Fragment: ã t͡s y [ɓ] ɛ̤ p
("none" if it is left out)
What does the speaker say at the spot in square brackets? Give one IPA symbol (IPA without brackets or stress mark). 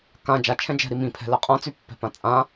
pː